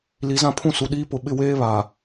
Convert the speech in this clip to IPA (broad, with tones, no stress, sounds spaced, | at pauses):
l i˨˦ z ã˦˨ pʰ ũ˦ s u˨ ɗ iː˦ p ʊ˨ ɓ ɪ˦˨ w eː˦ β a˨